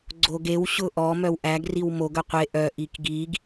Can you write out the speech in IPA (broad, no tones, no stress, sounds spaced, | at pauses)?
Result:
ɡ͡ǀ o ɡ e w ɕ ʊ ʔ ɔ m œ w ʔ æ ɡ r i w m o ɡ œ qʷ e ʔ œ ʔ i k ɡ i ɡ